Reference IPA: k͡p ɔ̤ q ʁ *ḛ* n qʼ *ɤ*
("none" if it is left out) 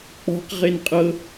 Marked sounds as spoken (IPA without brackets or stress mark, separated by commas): e, ɤ